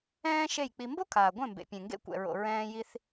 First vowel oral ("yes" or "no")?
no